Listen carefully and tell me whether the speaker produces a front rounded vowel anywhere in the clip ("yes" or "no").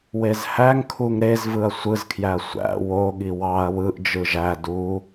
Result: no